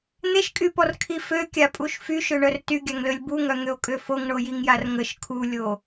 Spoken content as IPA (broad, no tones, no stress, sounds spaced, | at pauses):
n̪ e ʃ kʼ y p ɔ r kʰ i f ø kʲ a pʼ u ʃ f y ʃ ø ɳ œ r t y ɡʲ a ŋ l ø lʲ b u ŋ œ ŋ ø o̯ kʼ ø f o ŋ ɳ o j i ŋ j a r ŋ ə ʃ kʰ u lʲ o